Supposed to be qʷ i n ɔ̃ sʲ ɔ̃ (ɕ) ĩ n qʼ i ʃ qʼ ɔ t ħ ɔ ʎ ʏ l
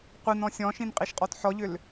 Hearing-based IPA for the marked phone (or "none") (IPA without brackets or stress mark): ʃ